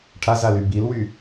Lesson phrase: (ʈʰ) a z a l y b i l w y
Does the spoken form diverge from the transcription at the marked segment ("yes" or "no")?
no